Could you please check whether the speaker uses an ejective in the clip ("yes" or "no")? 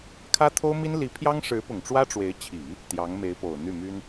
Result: no